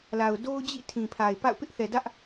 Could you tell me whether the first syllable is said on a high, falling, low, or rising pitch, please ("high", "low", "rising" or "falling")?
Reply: low